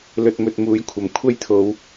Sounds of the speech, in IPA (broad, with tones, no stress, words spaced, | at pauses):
lɵ˨t̚mɵ˨t̚ muː˨˥jkʷʰɐ˨˩m kʷʰɐ˥jt̪ʰo˨˧w